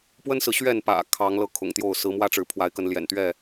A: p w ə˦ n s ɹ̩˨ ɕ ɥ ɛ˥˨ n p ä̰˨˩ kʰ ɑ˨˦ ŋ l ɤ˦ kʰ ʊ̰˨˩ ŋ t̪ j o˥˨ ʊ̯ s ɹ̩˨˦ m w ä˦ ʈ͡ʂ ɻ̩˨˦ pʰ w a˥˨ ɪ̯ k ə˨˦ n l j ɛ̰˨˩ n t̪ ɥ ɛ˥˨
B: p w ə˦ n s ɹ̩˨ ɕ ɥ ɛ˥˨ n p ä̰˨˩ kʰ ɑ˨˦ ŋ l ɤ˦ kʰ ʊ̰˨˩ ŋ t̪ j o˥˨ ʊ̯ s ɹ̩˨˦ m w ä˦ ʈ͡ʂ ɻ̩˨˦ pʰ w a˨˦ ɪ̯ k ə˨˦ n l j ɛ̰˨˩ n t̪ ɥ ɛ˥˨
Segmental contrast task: B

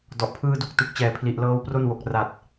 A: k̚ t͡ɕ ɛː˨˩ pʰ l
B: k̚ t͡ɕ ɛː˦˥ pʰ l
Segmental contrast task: A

